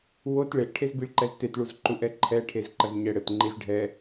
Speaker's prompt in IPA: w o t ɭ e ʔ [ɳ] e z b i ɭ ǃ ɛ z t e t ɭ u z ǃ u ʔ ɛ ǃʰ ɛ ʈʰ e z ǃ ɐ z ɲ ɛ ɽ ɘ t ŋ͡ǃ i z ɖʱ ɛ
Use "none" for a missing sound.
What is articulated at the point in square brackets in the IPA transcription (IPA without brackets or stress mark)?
ʈʰ